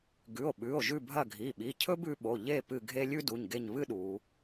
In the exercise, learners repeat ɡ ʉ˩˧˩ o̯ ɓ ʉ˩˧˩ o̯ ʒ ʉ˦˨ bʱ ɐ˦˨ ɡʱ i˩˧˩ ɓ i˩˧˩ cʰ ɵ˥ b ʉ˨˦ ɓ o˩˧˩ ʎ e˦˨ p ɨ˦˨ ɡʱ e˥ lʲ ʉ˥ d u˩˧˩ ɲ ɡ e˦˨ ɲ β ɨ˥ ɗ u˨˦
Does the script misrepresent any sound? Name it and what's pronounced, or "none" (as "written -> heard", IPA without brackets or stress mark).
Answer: none